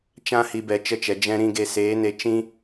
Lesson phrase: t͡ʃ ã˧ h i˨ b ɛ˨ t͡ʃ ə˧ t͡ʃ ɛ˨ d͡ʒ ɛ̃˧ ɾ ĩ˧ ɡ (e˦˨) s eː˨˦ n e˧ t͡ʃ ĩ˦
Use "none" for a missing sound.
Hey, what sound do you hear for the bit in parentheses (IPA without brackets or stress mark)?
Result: e˧